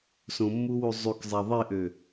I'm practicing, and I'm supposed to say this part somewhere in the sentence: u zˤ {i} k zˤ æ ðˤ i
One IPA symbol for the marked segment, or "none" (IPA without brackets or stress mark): y